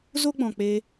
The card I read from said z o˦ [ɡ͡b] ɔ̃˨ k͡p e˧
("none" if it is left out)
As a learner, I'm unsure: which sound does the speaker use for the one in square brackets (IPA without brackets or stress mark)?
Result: ɡ͡b